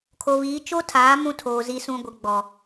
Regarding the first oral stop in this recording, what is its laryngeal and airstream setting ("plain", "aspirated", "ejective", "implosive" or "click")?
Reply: aspirated